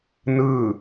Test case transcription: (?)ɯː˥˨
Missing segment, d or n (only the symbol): n